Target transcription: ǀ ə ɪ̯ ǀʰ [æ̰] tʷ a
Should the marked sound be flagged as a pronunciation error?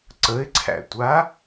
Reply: no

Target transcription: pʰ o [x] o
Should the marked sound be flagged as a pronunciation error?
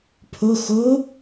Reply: no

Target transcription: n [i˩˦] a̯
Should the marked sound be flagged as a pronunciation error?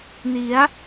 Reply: no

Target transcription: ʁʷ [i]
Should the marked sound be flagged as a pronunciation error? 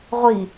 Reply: no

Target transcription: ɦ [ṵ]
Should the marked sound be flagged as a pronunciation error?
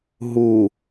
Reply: yes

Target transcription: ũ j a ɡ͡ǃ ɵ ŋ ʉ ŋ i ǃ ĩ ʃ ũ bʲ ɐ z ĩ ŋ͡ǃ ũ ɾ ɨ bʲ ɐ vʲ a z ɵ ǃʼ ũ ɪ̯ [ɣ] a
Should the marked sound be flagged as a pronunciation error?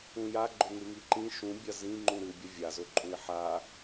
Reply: yes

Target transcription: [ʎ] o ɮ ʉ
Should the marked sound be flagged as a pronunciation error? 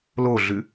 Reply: yes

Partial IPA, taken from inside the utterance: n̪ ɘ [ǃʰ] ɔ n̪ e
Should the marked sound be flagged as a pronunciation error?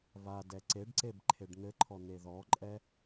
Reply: no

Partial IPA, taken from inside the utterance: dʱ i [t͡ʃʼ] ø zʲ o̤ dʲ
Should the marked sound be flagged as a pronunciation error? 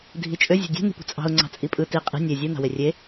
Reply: no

